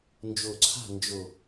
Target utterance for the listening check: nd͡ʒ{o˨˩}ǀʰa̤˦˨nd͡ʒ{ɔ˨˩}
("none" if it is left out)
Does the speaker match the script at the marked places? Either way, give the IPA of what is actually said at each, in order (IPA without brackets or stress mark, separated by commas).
o˨˩, o˨˩